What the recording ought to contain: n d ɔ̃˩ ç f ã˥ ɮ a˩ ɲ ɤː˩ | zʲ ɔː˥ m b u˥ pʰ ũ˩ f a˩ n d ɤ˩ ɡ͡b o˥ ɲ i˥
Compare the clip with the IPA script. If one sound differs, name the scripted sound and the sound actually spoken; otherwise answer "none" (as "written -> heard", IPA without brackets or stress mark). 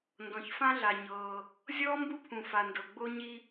none